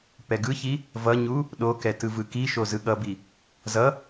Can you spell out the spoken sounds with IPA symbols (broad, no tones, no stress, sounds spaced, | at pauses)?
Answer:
p ɛ ɡ ɯ ç i | v ʌ ɲ u | ɗ o k ɛ t ɯ v ɯ k i ʃ o z ɯ ɠ ʌ b i | z ʌ